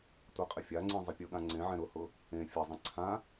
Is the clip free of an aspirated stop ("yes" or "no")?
no